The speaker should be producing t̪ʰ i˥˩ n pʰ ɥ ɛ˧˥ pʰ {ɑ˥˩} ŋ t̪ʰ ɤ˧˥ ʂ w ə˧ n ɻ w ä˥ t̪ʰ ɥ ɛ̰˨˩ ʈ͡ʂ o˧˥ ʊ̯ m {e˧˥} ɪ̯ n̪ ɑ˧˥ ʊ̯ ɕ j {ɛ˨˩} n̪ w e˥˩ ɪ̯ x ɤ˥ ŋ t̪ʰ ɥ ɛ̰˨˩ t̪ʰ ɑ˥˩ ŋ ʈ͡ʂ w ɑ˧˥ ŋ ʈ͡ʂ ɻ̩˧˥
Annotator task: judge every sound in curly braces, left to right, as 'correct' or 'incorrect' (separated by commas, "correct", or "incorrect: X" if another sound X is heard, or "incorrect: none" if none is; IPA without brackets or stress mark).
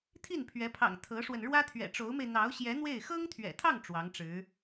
incorrect: ɑ̰˨˩, incorrect: e˧, incorrect: ɛ˧˥